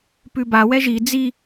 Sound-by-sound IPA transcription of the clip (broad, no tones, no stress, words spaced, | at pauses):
pʉba wɛʒi d͡zi